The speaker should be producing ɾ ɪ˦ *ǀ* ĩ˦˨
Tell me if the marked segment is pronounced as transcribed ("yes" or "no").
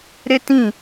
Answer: no